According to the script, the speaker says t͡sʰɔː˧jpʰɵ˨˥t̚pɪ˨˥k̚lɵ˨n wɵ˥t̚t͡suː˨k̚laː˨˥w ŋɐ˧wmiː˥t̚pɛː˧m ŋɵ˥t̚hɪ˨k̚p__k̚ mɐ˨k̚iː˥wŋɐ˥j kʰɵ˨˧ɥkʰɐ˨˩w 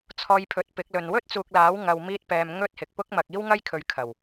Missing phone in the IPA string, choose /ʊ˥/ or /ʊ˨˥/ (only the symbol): ʊ˥